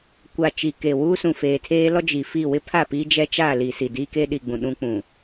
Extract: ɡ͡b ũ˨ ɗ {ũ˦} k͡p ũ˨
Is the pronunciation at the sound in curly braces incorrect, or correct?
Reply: correct